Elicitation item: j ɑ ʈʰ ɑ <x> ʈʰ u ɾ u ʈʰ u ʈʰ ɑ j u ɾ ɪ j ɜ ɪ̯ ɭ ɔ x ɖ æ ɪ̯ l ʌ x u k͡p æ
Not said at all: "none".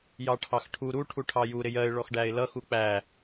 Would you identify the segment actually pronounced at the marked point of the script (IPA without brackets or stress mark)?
x